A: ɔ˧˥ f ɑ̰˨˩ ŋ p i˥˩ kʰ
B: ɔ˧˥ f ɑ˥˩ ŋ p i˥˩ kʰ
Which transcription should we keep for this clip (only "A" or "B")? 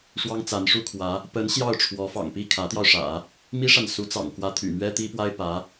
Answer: A